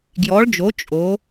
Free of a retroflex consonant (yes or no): no